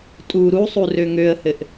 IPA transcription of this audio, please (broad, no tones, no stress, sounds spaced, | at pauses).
tʼ u ɾ u sˤ u r ø ŋ ø ə̯ h ɘ ʔ